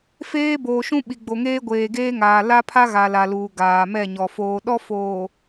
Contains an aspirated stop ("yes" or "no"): yes